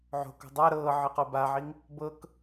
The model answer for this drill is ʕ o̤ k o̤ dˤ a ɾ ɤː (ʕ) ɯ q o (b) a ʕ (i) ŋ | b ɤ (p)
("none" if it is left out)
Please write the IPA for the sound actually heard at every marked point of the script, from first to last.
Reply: ʕ, b, i, k

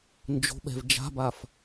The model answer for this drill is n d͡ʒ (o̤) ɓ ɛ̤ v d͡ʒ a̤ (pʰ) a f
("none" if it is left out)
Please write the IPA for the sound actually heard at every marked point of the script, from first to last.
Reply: o̤, b

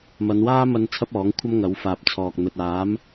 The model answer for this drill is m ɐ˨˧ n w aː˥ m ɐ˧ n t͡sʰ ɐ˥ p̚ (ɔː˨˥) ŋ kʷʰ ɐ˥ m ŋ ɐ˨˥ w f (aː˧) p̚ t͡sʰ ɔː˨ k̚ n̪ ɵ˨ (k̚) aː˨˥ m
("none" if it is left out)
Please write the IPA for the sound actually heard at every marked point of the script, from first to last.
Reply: ɔː˨˥, aː˨, t̚

